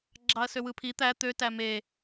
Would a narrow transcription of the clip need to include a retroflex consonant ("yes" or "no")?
no